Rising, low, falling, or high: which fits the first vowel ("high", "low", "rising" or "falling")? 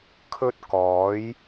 high